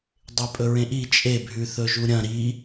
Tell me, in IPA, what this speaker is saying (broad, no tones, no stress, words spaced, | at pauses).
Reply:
dˤepʼɵɹẽʔi t͡ʃʼe bʱʉθɵʒuɾʲɐ̃ ɾi